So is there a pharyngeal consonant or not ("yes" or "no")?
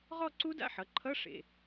yes